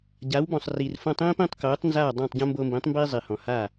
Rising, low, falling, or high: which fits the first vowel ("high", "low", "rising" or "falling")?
rising